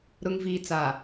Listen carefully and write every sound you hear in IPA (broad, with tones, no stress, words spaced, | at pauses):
ɾʊ˨ŋviː˨t͡sa˨